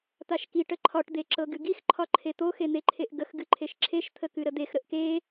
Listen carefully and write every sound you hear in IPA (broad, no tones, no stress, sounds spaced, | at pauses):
t̪ a ʃ k i ʈ ə ǃʰ ɒ ʈ d̪ e ǁ ɤ ɡ ɨ ɡ i x ǃʰ ɒ ǃʰ e t̪ o x e n̪ e ǃʰ e ʔ ɡ ə x ɡ ɨ ǃʰ e ʃ ǁʰ e ʃ t̪ʰ ə k ɨ ɾ ə d̪ e x ɾ ə ʔ k e